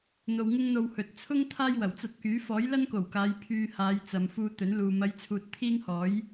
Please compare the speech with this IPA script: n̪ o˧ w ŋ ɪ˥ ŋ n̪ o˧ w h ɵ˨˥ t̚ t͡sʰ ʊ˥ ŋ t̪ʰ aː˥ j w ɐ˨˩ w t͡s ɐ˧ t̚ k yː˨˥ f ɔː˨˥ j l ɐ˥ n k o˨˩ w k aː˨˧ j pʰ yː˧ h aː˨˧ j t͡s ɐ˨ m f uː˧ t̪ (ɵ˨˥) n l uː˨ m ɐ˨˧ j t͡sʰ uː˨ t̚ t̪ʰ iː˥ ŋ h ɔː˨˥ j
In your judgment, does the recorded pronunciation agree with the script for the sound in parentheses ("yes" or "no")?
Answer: yes